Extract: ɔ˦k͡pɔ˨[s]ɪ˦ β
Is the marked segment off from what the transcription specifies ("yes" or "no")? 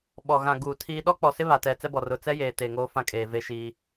no